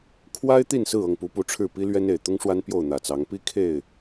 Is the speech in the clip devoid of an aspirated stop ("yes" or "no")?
no